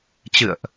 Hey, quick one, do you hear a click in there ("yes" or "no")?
no